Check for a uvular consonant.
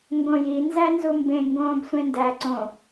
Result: absent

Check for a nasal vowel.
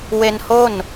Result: absent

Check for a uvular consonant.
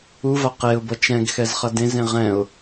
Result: present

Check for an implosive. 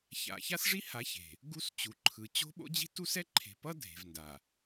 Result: present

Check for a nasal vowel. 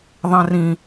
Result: present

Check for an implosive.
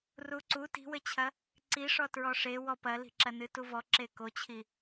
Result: absent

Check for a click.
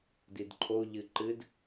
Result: present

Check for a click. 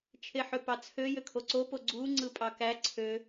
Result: present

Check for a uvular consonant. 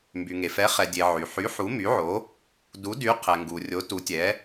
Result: present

